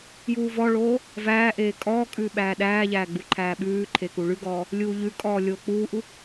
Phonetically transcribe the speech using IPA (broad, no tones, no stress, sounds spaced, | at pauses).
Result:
j uː v ɔ ɭ oː | v æː ʔ eː kʼ ɔː kʼ ʉː ɓ æː ɗ æː ʎ æː ɡ͡b u ǃʰ æː ɓ ʉː ǃʰ e k u ɭ ʉ ɡ ɔː | lʲ uː ʎ ʉ kʼ ɔː lʲ oː k͡p uː ʔ u